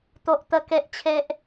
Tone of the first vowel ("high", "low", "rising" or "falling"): low